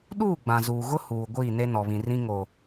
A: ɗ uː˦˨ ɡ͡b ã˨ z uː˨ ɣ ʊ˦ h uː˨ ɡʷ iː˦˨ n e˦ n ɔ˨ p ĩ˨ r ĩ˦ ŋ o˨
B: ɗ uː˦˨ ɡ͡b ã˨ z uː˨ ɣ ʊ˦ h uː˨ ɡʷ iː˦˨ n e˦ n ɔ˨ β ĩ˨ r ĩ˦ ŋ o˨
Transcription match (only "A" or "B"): B